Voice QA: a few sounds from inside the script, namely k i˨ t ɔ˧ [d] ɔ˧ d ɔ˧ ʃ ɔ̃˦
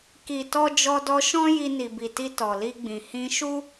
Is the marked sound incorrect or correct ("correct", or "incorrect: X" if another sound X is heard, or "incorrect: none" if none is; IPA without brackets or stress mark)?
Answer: incorrect: d͡ʒ